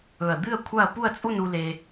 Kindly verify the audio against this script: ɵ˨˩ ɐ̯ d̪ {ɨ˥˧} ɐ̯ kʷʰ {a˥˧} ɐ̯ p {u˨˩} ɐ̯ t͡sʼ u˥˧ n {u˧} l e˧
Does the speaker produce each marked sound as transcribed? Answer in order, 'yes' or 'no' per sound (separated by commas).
yes, yes, no, yes